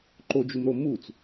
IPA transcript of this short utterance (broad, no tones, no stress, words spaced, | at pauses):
ǃod͡ʒumɾo mut͡s